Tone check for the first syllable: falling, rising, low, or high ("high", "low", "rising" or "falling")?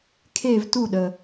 falling